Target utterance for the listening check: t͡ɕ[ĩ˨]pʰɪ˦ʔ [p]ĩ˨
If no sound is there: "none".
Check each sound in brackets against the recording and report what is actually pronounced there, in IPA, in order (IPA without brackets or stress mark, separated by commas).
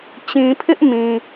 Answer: ĩ˨, m